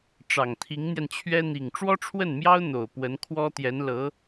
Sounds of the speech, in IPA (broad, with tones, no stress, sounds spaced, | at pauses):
ʈ͡ʂ ɑ˨˩ ŋ t̪ʰ i˧˥ ŋ n̪ j ɛ˧ n t͡ɕʰ ɥ ɛ˥ n̪ i˨˩ ŋ ʈ͡ʂ w ɔ˥ ʈ͡ʂʰ w ə˥˩ n m j ɑ˥ ʊ̯ n̪ o˨˩ ʊ̯ p w ə˧˥ n kʰ w ɔ˥ t̪ j ɛ˧˥ n l ɤ˧˥